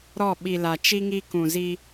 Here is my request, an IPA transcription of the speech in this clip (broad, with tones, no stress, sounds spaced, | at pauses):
ɾ ɔ˦˨ ɓ i˨ l a˨ t͡ʃ i˦ ŋ i˦ k ũ˨ z i˦